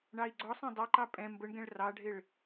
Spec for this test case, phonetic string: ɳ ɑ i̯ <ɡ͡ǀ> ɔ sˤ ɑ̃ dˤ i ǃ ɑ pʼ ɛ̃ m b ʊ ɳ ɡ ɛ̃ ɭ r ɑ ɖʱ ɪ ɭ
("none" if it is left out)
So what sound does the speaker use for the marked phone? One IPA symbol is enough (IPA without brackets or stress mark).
ɡ͡ǀ